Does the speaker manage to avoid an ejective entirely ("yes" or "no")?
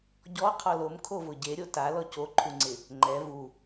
yes